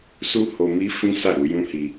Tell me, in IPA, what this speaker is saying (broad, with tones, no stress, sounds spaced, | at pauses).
s u˦ h o˧ m i˦ f ĩ˦ s a˦˨ ɾ u˧ j ũ˦ h i˧